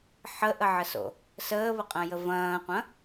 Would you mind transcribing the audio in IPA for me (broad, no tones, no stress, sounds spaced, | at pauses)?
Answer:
ħ ə ʔ ə ʕ ə s o̰ | s əː β ə qʼ ɐ̃ j ə v ɐ̃ː qʷ ɐ̃